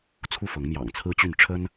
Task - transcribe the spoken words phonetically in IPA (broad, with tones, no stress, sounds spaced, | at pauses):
t͡sʰ u˥˨ f ɤ˨˦ ŋ m j ɑ̰˨˩ ŋ t͡sʰ ɹ̩˦ t͡ɕ y˥˨ n ʈ͡ʂʰ ə˦ n